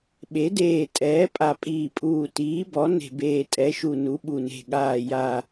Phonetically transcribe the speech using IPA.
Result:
ɓ e˩˥ d eː˧˩ tʼ ɛː˩˥ pʼ a˧˩ pʼ iː˧˩ pʼ uː˧˩ t iː˩˥ b ɔ˩˥ n e̤˧˩ b eː˧˩ tʼ ɛ˩˥ ʃ u˧˩ n u˩˥ ɓ u˧˩ n e̤˧˩ ɠ aː˧˩ j a˧˩

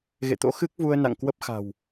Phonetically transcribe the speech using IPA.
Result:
ɣ ḛ˧˨ t̪ o̰˧˥ x ɨ˦˥ k̚ v u˧ ə̯ n a̰˧˨ ŋ k w ə˦˥ p̚ x a̤˨˩ w

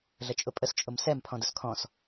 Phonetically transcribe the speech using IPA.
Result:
ɮ ə t͡ʃʼ ʊ pʼ ə s t͡ʃʼ ʊ m s ɛ m pʰ ɔ̃ d ʊ s kʰ ɔ̃ s

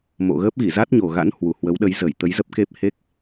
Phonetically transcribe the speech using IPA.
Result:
m o̰˧˨ ɣ əː˦˥ p̚ ɣ i˧˩ z a˦˥ t̚ ɲ o˨˩ ɣ a̰˧˥ n h w u˨˩ h w ə˨˦ w ɗ ə˨˦ j z ə˧˩ j t̪ ə˨˦ j z ə˦˥ p̚ k e˦˥ p̚ h e˦˥ k̚

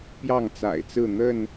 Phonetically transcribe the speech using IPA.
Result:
p j ɑ˥˨ ŋ t͡s a̰˨˩ ɪ̯ t͡s ɹ̩˥˨ n̪ ə˥˨ n

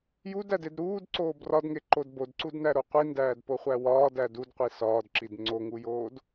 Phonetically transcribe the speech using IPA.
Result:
j u d æ d e d ɾ uː d ǀ oː b r ɒ d ŋ e ǃ o d b o d ǀ u d n æ ɾ o qʷ i n d æː d p o χʷ æ w ɒː d æ d u d qʷ i s ɒː d ǁ i d ŋ͡ǀ o ŋ u j oː d

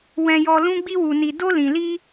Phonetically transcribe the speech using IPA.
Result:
w ɛ̃˧ j ɔ˧ l ũ˦ ɡ͡b i˦ w u˧ n i˧ d o˦ l ĩ˧ l i˦

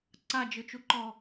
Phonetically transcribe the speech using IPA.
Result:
ǀ a d͡ʒ ɯ t͡ʃ u ǃ ɔ

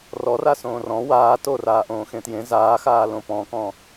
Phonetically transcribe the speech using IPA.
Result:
r ɔ r a s õː r ɔ̃ w aː t o r aː ʔ õː x ẽ t j ẽ z aː x aː l õ p ɔ̃ k ɔ̃

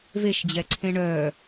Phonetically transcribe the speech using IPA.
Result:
v e ʃ d͡ʑ ɛ ǀʰ ẽ ɳ œ

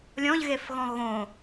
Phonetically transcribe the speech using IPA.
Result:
lʲ ɔ̃ ʎ ɣ e f ɣ ɔ̃ ɣ õ

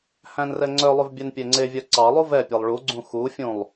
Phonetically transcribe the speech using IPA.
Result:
h æ̃ n r ɛ ŋ͡ǀ œ lˠ ʉ v bʲ ɛ n pʲ e ŋ͡ǀ e vʲ œ ǀ ɑ lˠ u v ɛ pʲ ɛ lˠ ɭ u ɡ͡ǀ ũ x u fʲ ũ lˠ

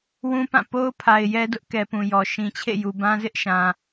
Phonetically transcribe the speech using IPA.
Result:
w ũ˦ p ã˦˨ p o˦ ʊ̯ pʰ a˨ ɪ̯ j ɛ˦ d ʊ˦ ʔ k ɛ˨ p ũ˨ j ɔ˨ ʃ ĩ˨ t͡ɕʰ ḛ˦˨ j u˨ b ã˦ z ɪ˦ ʔ ʃ ã˨

